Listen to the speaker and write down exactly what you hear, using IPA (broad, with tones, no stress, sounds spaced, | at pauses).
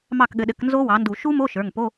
m ɑ˥˩ k ɠ ɘ˩˥ ɗ ɘ˩˥ k n z o˦˥ w ɑ˩˥ n d u˧˩˧ ʃ u˦˥ m o˧˥˧ ʃ ə˞˩˧˩ ŋ p o˧˥˧